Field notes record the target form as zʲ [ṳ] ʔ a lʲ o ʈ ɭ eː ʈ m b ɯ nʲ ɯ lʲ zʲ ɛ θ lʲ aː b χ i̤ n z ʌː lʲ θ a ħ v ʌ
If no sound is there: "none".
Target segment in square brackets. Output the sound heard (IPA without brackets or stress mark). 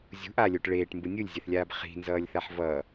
ṳ